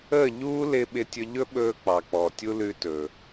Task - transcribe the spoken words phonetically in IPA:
əː˦˨ ʎ uː˦ l ɪ˧ ɓ ɪ˧ tʲ ɵ˧ ʎ ɵ˦ ɓ ɵː˧ k͡p ɑ˨ k͡p ɔ˨ tʲ u˦ l ʉ˧ t ɵː˨

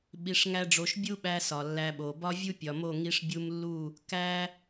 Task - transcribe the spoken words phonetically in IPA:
ɓ i˧ ʂ ŋ æ˦ ɖ͡ʐ o˧ ʃ bʲ u˦ ɓ æ˧ s ɒ˨ lː æ˧ ɓ o˨ b ɒ˦ vʲ u˦ pʲ ɒ˨ m o˦˨ ŋ i˧ ʂ bʲ u˧ m lː u˦˨ | k æ˦

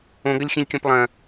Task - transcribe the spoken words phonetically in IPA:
õ ɡ ɐ lʲ x ĩ lʲ kʲ ɔ̃ p lˠ ɐ̃

